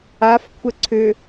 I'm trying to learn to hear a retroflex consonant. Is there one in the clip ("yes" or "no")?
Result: no